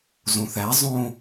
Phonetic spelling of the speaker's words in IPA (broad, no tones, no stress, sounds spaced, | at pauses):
z õ θ æ zˤ õ